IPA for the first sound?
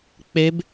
k͡p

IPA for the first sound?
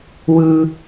w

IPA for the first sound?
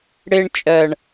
ɽ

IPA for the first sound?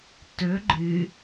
t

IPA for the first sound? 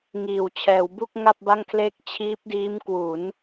ŋ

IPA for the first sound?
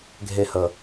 ɡʱ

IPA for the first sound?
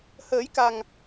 h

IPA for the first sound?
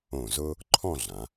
õ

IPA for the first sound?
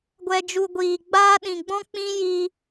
ɡʷ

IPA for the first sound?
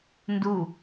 n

